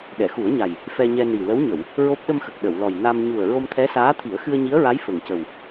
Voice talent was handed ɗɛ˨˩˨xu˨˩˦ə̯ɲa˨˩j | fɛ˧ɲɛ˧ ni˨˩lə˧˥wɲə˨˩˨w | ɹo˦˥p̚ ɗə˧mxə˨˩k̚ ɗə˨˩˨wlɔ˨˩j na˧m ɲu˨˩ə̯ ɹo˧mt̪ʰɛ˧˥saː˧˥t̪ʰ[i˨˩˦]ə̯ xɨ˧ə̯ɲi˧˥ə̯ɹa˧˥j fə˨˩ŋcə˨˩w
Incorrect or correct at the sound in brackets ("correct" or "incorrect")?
correct